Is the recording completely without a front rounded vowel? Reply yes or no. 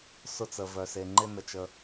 no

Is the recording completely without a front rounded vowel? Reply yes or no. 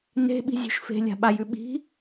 yes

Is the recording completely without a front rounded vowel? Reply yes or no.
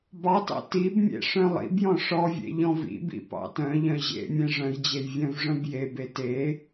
no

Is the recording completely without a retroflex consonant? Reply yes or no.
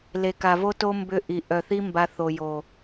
yes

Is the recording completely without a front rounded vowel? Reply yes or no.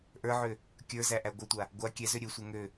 no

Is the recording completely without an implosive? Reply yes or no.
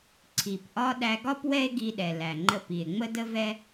no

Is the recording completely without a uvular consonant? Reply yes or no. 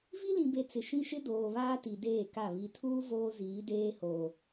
yes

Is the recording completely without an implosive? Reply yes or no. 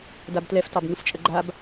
yes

